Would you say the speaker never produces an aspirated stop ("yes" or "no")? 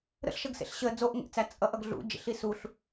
yes